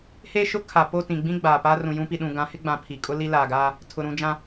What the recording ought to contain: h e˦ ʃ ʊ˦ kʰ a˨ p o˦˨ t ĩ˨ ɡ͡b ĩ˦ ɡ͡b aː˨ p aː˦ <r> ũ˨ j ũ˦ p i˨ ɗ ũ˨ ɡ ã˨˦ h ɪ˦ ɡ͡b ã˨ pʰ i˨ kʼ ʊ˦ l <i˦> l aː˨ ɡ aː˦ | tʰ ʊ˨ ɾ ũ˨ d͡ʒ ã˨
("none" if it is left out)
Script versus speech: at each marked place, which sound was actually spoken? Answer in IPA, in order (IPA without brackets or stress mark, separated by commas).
r, i˦